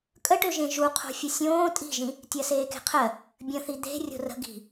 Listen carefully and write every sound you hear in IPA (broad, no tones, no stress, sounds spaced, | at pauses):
kʼ ə ʈ ø ʒ ẽ ʒ u qʰ o̤ fʲ ə sʲ õː tʼ i̤ ʒ ĩ | tʲ ɜ s eː k e̤ qʰ ɜ | bʲ ə̃ θ i d̪ e̤ rʲ o̤ r ə̤ ɡ i̤